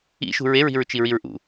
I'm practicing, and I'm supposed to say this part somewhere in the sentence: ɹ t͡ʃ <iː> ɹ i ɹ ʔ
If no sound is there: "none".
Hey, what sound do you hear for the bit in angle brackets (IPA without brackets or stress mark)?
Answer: i